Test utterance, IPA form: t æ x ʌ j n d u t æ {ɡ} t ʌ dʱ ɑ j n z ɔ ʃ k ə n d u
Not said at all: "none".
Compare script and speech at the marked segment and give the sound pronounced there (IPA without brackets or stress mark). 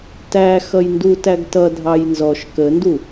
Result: ɡ